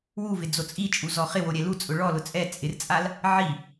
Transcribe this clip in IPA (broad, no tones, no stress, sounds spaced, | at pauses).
w u v ɪ d͡z o t͡sʼ i t͡ʃʼ u z ɔ χ ɪ w o ɾʲ ɛ l u t͡sʼ ʊ ɭ ɔ l ʊ t͡sʼ ɛ t͡sʼ ɪ r t͡sʼ a l | ʕ i